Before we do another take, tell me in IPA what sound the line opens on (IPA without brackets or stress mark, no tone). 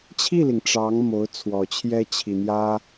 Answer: t͡ɕʰ